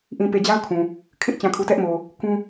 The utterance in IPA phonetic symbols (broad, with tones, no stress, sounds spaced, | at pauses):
ʔ ĩ˨ p e˨ d͡ʑ a˦ ʊ̯ kʰ ũ˨ | kʰ ɪ˦ ʔ t͡ɕ ã˨ kʰ u˨ t ɛ˦ ʔ m o˨ | k ũ˦